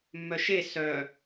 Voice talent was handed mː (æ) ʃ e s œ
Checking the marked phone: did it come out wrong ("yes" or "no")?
yes